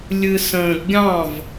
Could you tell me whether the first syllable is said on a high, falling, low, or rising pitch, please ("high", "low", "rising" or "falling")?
low